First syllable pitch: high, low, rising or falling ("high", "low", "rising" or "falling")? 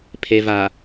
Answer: low